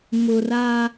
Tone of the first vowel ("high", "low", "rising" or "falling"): low